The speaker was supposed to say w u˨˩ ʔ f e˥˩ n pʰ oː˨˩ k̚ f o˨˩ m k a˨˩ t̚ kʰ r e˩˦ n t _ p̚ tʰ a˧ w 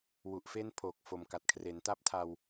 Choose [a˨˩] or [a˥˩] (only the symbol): a˥˩